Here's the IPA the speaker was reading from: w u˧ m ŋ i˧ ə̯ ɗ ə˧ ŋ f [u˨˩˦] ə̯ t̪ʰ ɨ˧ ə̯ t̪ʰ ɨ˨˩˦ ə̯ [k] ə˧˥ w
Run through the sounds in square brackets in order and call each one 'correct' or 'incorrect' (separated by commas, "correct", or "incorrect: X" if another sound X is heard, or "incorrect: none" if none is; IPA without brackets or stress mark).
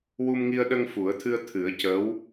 correct, incorrect: c